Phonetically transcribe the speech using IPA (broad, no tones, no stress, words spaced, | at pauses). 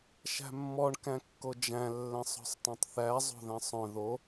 ʃæ̤mːɔɳ kæ̃kːod͡ʒæ̃ lːɛ̃sˤɔ̤sˤtˤœ̃tˤθæ zˤo̤ðɛ̃sˤœ̃ ðo